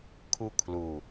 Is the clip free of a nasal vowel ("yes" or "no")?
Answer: yes